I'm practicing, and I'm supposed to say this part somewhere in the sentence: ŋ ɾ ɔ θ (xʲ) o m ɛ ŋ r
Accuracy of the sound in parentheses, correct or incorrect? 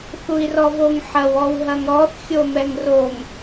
correct